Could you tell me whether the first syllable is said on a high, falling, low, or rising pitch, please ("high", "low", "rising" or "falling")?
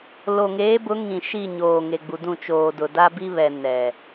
low